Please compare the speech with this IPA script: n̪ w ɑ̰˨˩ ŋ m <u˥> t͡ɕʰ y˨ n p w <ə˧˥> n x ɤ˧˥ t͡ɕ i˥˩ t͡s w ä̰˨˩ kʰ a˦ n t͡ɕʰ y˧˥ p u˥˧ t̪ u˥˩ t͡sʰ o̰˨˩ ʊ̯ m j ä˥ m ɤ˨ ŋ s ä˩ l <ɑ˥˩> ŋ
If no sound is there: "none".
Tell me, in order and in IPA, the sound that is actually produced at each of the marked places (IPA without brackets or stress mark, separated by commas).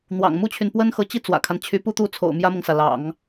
u˥, ə˥, ɑ̰˨˩˦